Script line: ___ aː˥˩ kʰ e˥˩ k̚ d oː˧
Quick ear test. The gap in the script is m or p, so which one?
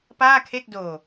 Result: p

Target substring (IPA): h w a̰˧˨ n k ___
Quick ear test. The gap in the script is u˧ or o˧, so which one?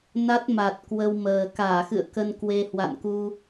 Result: u˧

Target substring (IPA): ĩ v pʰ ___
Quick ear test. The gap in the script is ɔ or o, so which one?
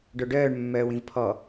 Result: ɔ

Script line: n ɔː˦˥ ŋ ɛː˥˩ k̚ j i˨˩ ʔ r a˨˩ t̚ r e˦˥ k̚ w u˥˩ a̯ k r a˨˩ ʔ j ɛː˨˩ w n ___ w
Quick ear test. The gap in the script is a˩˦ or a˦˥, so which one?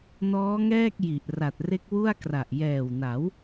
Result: a˩˦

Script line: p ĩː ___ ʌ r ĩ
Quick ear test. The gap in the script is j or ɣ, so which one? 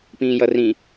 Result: j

